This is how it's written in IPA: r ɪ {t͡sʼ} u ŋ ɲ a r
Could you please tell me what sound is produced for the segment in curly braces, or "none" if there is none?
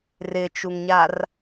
t͡ʃ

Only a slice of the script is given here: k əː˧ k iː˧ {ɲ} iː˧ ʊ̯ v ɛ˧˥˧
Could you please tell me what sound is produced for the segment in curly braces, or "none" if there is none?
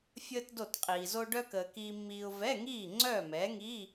mː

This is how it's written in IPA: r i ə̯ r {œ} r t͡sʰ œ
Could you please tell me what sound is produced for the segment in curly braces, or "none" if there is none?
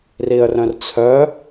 œ̃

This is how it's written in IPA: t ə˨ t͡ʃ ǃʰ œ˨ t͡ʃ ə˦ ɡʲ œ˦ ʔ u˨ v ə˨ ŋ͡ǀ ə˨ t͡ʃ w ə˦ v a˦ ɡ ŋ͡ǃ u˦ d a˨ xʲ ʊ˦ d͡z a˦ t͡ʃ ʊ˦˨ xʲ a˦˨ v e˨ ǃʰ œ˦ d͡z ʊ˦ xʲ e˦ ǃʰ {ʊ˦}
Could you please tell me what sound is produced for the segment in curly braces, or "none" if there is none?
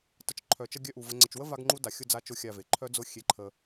ə˦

